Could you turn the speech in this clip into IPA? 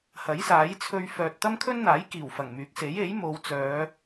hɐ˨˥jsaː˨˥jt͡sʰɵ˧ɥ fœː˨t̚ t̪ɐ˥mkʰɵ˥nn̪aː˨˥j kiː˨˩wfɐ˨˩ŋmyː˨˥k̚ se˨˥je˨˥jmo˨˧wt͡sœː˨˧

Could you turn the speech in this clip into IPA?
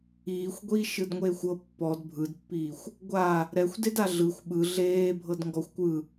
iːxʷɡʷiː ʃɯdŋʷeːxʷɤ pːɔd bʱɯdpːiːxʷ | ɡʷa | ɾɛxʷdeda ɮɯxʷ ɓɯ ɮeː bʱɤdŋɡɔxʷkʷɯ

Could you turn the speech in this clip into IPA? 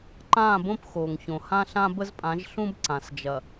ǃãː˦˨bõ˦p xoː˨ŋçõ˨ hã˦ɬã˦bə˦zpʼã˨˦ʒ ɬũ˦b ǀã˨sd͡ʒɐ˨

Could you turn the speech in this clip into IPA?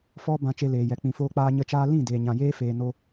fɔ˦ bã˧t͡ʃe˧leː˨jɛ˨ k͡pĩ˨foː˧k͡paː˧ ɲə˦t͡ʃaː˦ lĩ˦˨ deː˨ɲã˨jeː˦feː˨ no˧

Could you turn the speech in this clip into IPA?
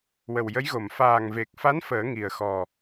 wə˨˩wjə˧˥jɣo˨˩˨m faː˨˩ŋve˨˩k̚fa˧˥n fəː˨˩˦ŋi˨˩ə̯xɔ˨˩

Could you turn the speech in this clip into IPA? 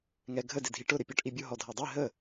ŋɛɡʱə dɪdʱiʈʊ ɾɪpʲɔʈʔibʲʊ ɦɔdʱædˤi ɦə

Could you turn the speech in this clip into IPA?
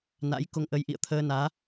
na̰˧˥j ko˧ŋʔə˧j ʔḭ˧˨ə̯t̪ʰəː˧naː˨˦

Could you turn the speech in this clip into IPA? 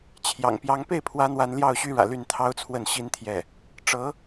t͡ɕʰjɑ̰˨˩ŋpjɑ˧˥ŋ pe˥˩ɪ̯pʰwä˧˥ n̪wa˧˥nljɑ˥˩ʊ̯ɕy˥ɻä̰˨˩ ly˥˩nt̪ʰɑ˥ʊ̯t͡sʰwə˥˩nɕi˥n t̪ʰjɛ˥˩ | ʈ͡ʂɤ˧˥

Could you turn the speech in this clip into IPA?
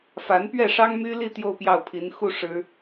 fa˧˥npɥɛ˥˩ʂɑ˥ŋ my˥li˥˧ t̪jo˥˧ʊ̯pjɑ˥˩ʊ̯pʰi˧˥n xu˥˩ ʂɻ̩˥

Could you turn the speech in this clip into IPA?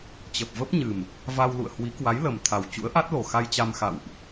t͡ɕə˨˩p̚və˦˥p̚ɲɨ˨˩m | va˧wlṵ˧˨ə̯hwi˨˦ kwa˨˦jlə˨˩mt̪ʰa˨˩w t͡ɕṵ˧˥ə̯ʔa˦˥t̚lo˨˩ xa˧jt͡ɕa˧mxa̰˧˨wʔ

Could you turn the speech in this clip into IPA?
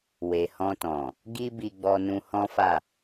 we˨hɔ̃˧tɔ̃˨ | ɡi˦bi˧ ɡ͡bɔ˧nũ˧hɔ̃˦fa˦˨

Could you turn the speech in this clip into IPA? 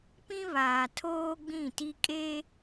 pĩ˦βaː˨tʰoː˦ ɡ͡bĩ˦˨ti˦ kʼe˦

